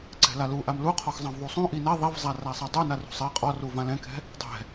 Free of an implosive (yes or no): yes